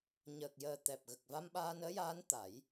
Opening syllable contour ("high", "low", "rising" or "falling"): low